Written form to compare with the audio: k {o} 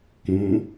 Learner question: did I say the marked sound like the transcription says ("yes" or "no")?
no